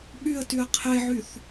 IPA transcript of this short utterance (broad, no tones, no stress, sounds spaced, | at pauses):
ɓ y ə̯ t y ə̯ qʰ e ʕ y θ